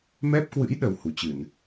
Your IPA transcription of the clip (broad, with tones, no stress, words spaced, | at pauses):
mɛ˦˥p̚kwɨ̰˧˥j ɗə˧w hu˨˦t͡ɕɨ˧˩˨n